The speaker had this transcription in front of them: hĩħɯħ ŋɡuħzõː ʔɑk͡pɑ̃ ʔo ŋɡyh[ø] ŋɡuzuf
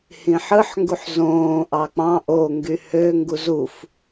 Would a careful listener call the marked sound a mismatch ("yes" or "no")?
no